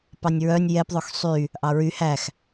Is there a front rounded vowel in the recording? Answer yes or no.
yes